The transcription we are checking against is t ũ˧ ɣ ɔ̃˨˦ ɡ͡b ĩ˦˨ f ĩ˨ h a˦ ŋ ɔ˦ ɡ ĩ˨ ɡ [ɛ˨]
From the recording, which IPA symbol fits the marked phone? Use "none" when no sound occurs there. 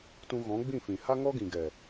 ɛ˨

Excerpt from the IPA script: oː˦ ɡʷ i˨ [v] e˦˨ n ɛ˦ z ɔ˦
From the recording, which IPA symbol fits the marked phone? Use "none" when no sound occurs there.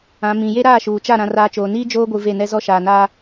v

